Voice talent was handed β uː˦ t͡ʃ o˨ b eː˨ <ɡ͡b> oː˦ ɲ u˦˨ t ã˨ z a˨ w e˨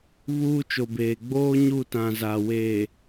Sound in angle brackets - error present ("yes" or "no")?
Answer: no